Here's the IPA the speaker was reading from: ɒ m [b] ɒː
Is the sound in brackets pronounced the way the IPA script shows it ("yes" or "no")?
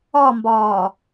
yes